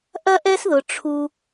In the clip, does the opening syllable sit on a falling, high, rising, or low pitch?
high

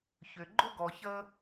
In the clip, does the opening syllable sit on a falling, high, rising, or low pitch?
low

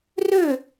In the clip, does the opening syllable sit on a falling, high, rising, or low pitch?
falling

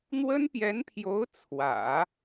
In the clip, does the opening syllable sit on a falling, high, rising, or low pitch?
high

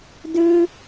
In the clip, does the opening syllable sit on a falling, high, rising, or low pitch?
high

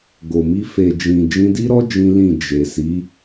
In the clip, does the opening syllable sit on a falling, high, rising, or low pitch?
low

